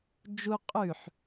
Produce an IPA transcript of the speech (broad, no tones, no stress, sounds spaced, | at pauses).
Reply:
d͡ʒ u qʼ ʉ ħ